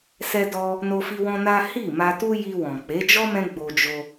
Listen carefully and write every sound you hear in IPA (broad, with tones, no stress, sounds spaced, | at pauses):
s ɛ˦ d ɔ˦ | n o˦ f i˦ w ɔ̃˦ n a˦ h i˦˨ m a˧ t u˦ j i˧ w ɔ̃˨ k͡p e˨˦ d͡ʒ ɔ˦ m ɛ̃˦ ɡ͡b o˧ d͡ʒ o˧